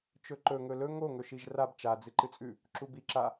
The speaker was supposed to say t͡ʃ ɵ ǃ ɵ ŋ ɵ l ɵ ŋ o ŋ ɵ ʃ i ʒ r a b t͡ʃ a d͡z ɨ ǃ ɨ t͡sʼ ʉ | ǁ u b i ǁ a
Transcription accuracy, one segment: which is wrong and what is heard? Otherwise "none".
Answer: none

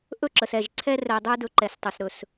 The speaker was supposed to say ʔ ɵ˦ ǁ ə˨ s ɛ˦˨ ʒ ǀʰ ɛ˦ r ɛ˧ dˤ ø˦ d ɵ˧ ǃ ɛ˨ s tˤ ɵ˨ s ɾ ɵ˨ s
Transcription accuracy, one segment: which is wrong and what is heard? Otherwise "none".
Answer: none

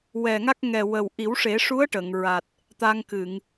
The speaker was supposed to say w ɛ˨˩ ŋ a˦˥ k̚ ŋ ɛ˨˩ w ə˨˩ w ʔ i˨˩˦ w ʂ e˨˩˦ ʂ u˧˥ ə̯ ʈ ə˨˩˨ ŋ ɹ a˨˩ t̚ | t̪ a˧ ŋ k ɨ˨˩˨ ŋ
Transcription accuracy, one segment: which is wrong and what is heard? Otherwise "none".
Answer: none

